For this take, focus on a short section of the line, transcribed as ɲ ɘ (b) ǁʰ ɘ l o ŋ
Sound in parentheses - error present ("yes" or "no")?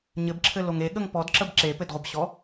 no